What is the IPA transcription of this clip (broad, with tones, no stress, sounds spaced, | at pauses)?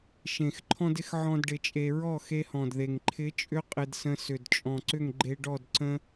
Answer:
ʃ ẽ˨ x ǃʰ ɔ̃˦ d ɪ˦ x ʕ ɔ̃˦ d ɖ ɪ˧ t͡ʃʼ e˧ ɹ ɔ˦˨ x e˧ h ɔ̃˨ d ð e˨ ŋ ǃʰ ɪ˨˦ t͡ʃʼ ʏ˧ qʼ ɪ˧ d s ə̃˧ s ʏ˨ d t͡ʃʼ ɔ̃˨ ǀ ʏ˦˨ ŋ ɡ͡ǃ e˧ ɖ ɔ˦˨ d ǀ ə̃˦